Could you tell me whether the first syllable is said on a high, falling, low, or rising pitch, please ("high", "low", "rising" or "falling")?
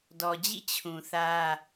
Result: low